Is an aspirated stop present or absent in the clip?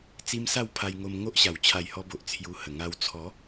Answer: present